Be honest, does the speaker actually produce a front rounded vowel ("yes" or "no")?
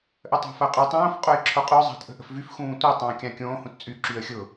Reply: yes